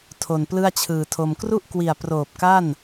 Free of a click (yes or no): yes